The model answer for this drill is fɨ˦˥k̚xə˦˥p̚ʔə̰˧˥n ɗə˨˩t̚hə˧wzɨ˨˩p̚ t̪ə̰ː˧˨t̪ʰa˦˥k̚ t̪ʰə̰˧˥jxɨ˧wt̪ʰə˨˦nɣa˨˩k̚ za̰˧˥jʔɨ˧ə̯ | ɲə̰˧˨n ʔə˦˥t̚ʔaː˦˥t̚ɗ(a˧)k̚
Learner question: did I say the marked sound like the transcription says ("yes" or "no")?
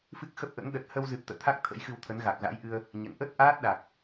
no